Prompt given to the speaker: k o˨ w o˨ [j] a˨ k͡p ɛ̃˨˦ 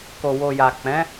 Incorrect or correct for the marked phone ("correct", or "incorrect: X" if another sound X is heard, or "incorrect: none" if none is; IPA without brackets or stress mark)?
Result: correct